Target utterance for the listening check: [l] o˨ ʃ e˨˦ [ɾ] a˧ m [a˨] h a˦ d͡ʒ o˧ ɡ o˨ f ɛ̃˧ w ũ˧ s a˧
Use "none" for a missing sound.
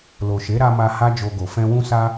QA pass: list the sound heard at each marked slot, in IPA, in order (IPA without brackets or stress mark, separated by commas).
l, ɾ, a˧